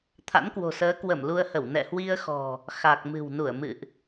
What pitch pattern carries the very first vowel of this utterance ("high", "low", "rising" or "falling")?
rising